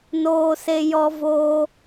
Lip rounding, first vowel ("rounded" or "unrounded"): rounded